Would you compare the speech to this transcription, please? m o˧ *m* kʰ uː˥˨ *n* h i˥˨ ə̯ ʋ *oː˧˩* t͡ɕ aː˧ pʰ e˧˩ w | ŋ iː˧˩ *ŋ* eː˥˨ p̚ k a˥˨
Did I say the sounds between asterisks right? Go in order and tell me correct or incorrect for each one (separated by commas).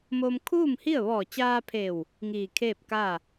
correct, incorrect, incorrect, incorrect